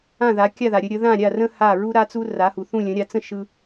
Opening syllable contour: falling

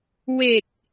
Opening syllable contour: low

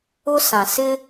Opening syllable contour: high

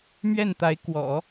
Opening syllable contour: falling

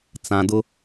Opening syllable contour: low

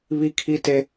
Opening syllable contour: high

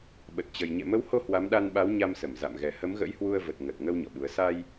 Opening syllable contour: low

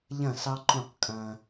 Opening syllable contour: falling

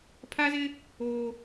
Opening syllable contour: high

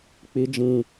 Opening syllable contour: high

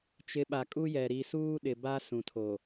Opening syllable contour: rising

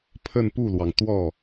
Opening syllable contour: falling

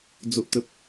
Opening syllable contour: low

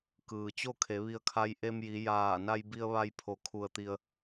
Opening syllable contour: low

